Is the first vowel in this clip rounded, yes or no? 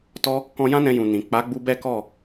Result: yes